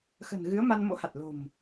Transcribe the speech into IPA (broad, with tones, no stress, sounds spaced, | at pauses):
x ə̤˨˩ n ɣ ɨ˨˦ ə̯ m a˧ n m o̰˧˥ h a˨˩ t̚ l o̤˨˩ m